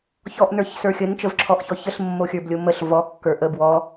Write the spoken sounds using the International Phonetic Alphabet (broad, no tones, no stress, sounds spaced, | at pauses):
ç ɔ ʔ n ə˞ ç s ə˞ xʲ ə n t͡ʃ ə v ǁʰ ɔ ʔ ç ɔ ç ə ɬ mː o xʲ ə˞ b lʲ o m ə ɬ v ɔ kː ə˞ ʔ ə b w ɔ